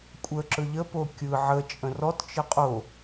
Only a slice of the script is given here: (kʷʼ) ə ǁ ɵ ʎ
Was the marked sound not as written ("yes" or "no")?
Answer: no